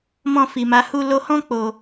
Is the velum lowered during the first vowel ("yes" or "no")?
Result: yes